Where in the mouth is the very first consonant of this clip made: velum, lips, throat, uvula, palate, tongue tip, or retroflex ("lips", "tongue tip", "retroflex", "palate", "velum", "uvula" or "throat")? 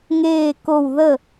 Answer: velum